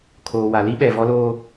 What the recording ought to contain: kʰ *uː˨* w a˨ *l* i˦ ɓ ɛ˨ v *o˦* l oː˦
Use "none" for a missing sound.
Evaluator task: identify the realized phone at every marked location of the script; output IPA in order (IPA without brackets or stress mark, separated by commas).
oː˨, l, ɔ˦